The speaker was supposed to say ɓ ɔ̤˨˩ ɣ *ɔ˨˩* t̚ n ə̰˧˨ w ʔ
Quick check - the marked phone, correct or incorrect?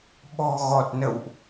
correct